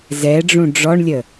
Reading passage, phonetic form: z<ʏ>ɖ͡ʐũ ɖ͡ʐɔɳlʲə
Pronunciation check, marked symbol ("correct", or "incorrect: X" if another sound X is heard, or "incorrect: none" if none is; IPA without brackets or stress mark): incorrect: ɛ